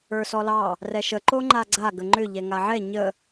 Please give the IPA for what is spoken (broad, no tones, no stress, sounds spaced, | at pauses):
ə˞ s ɔ l ɑ | r ɛ ʃ ə ǃ o ŋ͡ǃ a ɡ͡ǀ a ɡ ə ŋ͡ǃ ʏ ʎ ɛ ŋ a ʕ ɛ ɲ ə